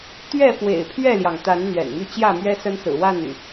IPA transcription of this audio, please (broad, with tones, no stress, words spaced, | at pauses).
t̪ɥɛ˥˨ fwḛ˨˩ɪ̯pʰɥɛ˥˨ljɑ˩ŋ t̪a˨˦n n̪ɥɛ̰˨˩nmy˥˨ t͡ɕjä˥˨mɥɛ˦sə˦n sɹ̩˨˩wa˥˨ny̰˨˩